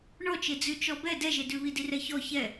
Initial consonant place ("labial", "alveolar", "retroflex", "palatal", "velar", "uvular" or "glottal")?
retroflex